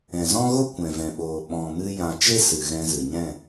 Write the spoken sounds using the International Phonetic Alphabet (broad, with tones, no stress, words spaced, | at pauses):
ɛ̃˨zɔ̃˦ɣo˦ kʷɛ̃˨vɛ̃˨ɓoː˨ ɓɔ̃˨mɨ˧ jã˨ t͡ʃe˦sɨ˨ ɣɛ̃˧zɨ˨ɲɛ̃˦˨